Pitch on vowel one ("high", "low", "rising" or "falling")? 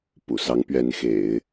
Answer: low